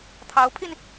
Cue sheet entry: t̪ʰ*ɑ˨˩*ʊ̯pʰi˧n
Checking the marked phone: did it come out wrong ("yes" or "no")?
yes